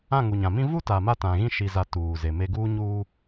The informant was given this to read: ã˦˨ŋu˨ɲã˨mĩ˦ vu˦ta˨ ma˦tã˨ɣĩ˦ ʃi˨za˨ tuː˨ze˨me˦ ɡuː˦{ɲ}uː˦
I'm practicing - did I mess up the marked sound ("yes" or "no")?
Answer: no